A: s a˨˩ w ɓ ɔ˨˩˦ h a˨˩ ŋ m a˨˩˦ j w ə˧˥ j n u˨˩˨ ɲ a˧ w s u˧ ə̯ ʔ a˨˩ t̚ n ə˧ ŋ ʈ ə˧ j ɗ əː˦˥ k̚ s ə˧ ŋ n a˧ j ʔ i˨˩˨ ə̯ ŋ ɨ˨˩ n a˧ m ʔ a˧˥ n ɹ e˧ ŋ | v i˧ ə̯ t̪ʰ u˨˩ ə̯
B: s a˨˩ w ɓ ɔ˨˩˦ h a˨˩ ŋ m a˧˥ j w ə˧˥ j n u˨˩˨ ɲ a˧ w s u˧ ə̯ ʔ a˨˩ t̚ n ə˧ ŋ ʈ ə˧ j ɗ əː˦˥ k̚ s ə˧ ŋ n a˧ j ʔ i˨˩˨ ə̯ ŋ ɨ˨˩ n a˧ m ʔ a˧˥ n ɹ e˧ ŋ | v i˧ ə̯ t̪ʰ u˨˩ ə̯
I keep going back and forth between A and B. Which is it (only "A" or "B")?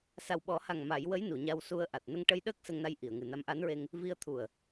A